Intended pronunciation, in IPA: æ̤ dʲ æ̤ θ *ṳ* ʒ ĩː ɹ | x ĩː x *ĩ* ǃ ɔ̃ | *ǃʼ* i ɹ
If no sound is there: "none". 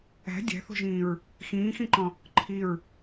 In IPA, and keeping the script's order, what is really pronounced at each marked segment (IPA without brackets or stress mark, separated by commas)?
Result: o̤, ĩ, ǃʰ